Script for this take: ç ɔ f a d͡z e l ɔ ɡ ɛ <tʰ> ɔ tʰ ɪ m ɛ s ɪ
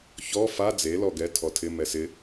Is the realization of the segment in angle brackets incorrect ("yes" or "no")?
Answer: no